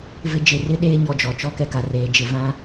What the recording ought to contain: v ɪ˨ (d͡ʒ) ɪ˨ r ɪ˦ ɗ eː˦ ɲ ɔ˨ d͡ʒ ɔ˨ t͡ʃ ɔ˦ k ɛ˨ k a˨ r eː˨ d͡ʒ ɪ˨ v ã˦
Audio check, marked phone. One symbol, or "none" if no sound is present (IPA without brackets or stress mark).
d͡ʒ